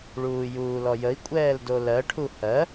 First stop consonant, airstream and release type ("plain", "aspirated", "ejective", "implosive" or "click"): ejective